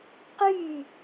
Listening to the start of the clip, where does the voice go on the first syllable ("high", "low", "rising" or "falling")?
falling